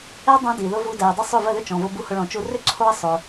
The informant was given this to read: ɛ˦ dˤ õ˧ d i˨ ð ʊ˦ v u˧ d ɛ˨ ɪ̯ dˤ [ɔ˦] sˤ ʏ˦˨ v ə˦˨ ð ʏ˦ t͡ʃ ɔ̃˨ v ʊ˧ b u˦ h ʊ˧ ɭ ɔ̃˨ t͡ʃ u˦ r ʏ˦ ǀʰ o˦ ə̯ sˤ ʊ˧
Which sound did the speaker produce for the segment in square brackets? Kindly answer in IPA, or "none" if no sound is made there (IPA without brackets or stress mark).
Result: ə˦